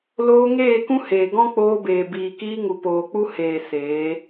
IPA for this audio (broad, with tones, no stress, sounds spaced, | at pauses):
l oː˧ ŋ eː˦˨ k ũ˦ h eː˨ ɡ ɔ̃˦ k͡p oː˧ b eː˨ b iː˨ k iː˧ ŋ u˨ p oː˨ k͡p u˦ h eː˨ s eː˨˦